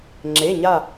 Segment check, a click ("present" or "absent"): present